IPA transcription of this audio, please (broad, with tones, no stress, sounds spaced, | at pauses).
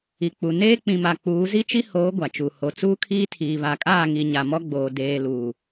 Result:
i˨ k͡p u˨ n eː˦ k͡p ĩ˨ m a˨ k͡p uː˨˦ z i˦ t͡ʃ i˦ h oː˨˦ ɡʷ a˨ t͡ʃ u˨ h o˨ t͡s uː˦ kʰ iː˦ tʰ iː˨ β a˨ kʼ aː˦˨ ŋ i˨ ɲ a˨ m ɔ˦ ɡ͡b oː˨ d eː˨ l uː˨